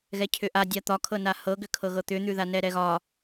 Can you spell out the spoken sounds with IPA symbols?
ɣ ɛ cʰ ʏ ʔ a dʲ a t̪ ɒ kʰ ɤ n a h ɤ ɡ ʏ kʰ ɤ ɣ ɤ t̪ ʏ n̪ ʉ ð a n ɛ ɾ ɛ ɣ ɒ

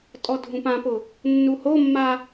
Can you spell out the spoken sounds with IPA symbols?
tʼ ɔ dʱ ũ p ã p ʊ | nː u h o mː a

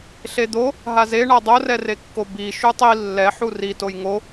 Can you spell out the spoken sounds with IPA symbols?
ɬ e d̪ o | ɦ a z e ɳ a dˤ o r ɛ r e kː o b i ʃ u tˤ i lː ɛ ħ u r i t o j ŋ o

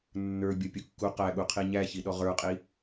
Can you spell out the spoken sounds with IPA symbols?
nː ə˞ bʲ ɔ pʲ u kː u q æ ɠ u qʰ i ɲ æ ç i ɗ ɔ ʁ ə˞ qʼ i

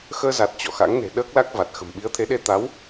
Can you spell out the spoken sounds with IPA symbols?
x əː˧ z a˨˩ t̚ t͡ɕ ɔ̰˧˨ x a̰˧˥ ŋ n e̤˨˩ ɗ əː˦˥ k̚ l a˦˥ k̚ v a˨˩ t̚ x ə̤˨˩ m ɓ i˨˦ ə̯ t̪ʰ e˨˦ ɗ e˧ t̪ a˨˦ w

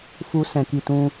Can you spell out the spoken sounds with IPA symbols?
f u˨ s ɛ̃˨ k i˨ t ũ˧

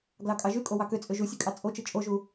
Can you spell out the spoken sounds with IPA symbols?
ɡ l ɑ kʼ ɑ ʒ y kʼ o w ɑ k ø t͡sʼ ø ʒ u sʲ ø kʼ ɑ t͡sʼ o t͡ʃ ɯ t͡ʃʼ o ʒ u

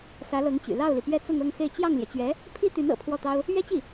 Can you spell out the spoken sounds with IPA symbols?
s ä˧˥ l ɤ˧˥ ŋ t͡ɕ y̰˨˩ l ɑ˥˩ ʊ̯ l i˩ p ɥ ɛ˥˧ t͡s ʊ˥˧ ŋ ɤ˥˧ ŋ x e˥˧ ɪ̯ t͡ɕ j ɑ˥˩ ŋ l j ɛ˩ t͡ɕ ɥ ɛ˧˥ | pʰ i˥ t̪ y˧˥ n ɤ̰˨˩ pʰ w ɔ˥˩ t̪ ɑ˥ ʊ̯ | ɥ ɛ˥ t͡ɕ i˥˩

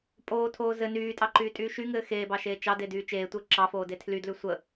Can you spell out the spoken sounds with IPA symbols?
pʼ oː tʰ oː z ɘ n yː tʼ ɑ ǃ yː tʼ yː ʃ y ŋ ɘː x eː b ɑ ʃ eː t͡ʃ ɑ d e d yː t͡ʃ eː tʷ ɘː ǁ ɑ f oː d e tʰ l y d l ʉ sʷ ə

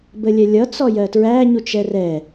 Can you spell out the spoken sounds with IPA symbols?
b ə lʲ ɛ lʲ ʌ t͡s ɔ j ɜ t ɹ æ ɲ u t͡ʃ ɛ r ɛ

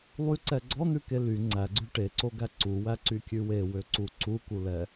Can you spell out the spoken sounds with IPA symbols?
lˠ y ǀ ɛ ɡ͡ǀ ɔ n̪ ʉ k e l y ŋ͡ǀ æ ɡ͡ǀ ʉ ʈ e ǀ o ɡ æ ǀ u w æ ǀ y kʲ ʉ w e w ø ǀ u ǀ u k u l ɛ

